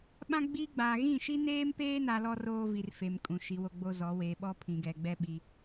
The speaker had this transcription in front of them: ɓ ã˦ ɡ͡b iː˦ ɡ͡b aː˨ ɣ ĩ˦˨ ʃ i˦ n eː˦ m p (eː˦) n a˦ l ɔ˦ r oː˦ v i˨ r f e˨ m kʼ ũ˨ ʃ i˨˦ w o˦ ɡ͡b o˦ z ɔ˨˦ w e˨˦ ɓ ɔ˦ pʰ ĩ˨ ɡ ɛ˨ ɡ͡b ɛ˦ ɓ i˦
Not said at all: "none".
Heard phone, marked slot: eː˦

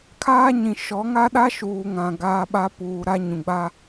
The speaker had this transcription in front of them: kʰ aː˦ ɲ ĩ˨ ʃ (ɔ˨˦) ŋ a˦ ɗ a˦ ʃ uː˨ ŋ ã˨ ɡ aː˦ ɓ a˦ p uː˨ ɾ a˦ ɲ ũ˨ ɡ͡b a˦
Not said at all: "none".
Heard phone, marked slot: ɔ˨˦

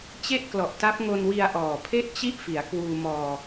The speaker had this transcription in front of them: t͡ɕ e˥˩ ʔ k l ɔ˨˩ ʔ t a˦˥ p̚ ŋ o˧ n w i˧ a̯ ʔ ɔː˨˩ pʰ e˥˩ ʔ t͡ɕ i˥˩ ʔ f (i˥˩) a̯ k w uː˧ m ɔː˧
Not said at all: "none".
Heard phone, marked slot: i˩˦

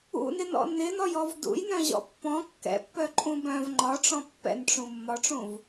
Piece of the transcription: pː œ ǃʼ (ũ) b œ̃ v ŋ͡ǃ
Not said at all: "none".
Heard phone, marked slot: ũ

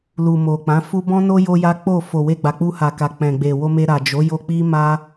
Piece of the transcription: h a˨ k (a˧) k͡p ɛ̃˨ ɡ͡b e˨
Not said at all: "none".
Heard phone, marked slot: a˨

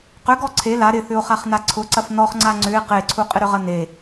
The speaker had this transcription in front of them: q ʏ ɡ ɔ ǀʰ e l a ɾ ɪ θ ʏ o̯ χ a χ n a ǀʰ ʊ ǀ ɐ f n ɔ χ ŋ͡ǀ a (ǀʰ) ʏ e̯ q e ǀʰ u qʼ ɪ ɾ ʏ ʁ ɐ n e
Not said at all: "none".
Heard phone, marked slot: ŋ͡ǀ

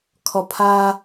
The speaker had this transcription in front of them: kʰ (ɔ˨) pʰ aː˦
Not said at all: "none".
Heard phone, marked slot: ɔ˨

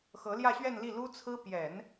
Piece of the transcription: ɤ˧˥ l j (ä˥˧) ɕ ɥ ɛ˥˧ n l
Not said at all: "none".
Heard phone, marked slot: ä˥˧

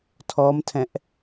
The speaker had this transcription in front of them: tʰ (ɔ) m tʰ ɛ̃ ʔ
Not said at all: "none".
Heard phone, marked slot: ɔ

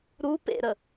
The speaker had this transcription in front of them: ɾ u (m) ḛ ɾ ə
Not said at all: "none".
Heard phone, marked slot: p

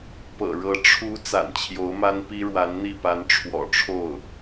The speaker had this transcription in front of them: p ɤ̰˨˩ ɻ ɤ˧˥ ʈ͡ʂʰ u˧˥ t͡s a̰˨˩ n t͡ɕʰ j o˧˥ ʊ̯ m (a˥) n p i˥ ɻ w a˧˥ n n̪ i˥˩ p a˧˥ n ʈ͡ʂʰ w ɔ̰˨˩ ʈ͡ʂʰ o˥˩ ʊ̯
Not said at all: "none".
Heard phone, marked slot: a˥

